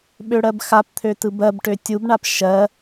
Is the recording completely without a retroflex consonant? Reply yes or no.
no